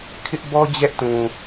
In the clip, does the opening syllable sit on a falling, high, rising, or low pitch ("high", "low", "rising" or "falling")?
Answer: high